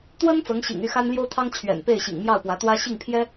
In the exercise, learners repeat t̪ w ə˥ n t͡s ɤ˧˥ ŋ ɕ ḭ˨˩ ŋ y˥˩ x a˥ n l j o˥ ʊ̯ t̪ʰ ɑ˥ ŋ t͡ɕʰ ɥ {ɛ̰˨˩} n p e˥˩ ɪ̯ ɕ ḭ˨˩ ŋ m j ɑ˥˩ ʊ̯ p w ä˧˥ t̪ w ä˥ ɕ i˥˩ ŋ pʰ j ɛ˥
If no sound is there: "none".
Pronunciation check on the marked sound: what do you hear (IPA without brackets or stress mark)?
ɛ̰˨˩